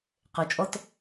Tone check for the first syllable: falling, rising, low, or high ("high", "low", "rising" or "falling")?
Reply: low